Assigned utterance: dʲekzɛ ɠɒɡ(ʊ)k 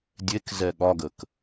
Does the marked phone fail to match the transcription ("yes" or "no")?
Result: yes